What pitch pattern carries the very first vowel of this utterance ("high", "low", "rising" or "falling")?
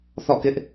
falling